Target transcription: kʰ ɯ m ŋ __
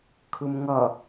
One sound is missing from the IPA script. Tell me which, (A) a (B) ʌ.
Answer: B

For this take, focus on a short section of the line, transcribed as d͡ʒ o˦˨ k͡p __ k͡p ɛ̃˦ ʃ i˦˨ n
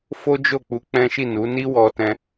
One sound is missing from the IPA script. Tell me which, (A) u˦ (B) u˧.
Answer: B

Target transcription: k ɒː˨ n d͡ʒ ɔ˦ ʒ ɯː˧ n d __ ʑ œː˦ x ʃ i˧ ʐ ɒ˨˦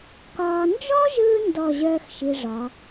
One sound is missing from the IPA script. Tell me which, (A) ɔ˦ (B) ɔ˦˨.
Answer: B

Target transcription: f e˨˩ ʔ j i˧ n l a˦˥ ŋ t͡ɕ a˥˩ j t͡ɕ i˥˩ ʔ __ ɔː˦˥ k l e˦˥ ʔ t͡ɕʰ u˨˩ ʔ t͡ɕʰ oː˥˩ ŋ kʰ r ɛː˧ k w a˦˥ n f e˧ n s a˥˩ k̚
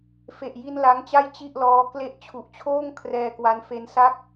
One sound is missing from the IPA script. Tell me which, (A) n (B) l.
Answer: B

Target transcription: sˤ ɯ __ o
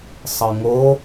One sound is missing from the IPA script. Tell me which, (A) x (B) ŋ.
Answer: B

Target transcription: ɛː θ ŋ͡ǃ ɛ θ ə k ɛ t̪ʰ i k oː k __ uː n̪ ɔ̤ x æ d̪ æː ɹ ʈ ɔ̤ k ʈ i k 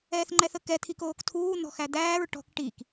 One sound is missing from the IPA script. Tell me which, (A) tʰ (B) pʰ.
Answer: A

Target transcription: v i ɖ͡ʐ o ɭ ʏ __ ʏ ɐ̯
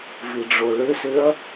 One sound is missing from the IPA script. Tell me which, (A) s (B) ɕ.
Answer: A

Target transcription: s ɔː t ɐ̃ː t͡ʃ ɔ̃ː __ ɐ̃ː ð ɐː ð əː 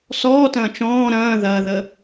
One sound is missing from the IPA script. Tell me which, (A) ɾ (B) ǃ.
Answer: A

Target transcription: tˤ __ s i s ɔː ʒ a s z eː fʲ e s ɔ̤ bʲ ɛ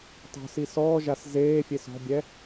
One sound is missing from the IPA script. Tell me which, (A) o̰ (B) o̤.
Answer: B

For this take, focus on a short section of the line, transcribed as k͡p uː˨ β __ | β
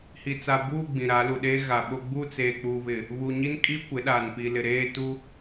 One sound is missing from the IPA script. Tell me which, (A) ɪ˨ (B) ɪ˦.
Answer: A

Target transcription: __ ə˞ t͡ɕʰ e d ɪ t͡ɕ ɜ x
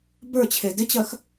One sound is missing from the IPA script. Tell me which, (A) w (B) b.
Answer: B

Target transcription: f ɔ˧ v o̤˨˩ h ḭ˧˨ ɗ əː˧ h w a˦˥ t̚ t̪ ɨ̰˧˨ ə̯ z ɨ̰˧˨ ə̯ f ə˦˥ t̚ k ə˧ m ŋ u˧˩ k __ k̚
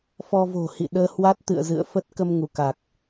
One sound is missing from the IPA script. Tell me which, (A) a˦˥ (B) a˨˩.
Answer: B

